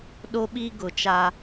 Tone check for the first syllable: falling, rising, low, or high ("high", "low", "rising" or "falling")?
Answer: high